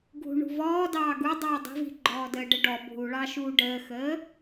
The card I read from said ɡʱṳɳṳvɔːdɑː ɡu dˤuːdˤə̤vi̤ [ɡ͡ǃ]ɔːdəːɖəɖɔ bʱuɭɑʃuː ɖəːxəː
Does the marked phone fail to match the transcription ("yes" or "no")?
no